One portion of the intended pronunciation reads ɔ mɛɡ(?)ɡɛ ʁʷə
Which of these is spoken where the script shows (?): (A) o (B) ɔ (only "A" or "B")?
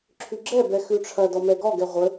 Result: B